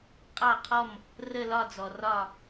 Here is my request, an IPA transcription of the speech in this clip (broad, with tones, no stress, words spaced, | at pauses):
qʼɑ˥˩qʰɔ˥˩m | rə˥˩lɒ˥˩d͡zɔ˩ rɒ˥˩